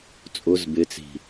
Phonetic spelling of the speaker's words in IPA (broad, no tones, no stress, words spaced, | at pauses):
t͡sʼʊz bɪt͡si̤